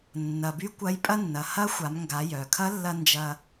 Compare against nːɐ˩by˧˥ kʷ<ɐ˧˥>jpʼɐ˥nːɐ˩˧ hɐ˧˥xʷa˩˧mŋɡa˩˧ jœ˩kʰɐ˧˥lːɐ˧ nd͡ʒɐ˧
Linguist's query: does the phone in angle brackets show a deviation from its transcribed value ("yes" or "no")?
no